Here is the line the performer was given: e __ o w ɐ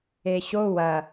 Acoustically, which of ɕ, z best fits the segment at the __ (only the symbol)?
ɕ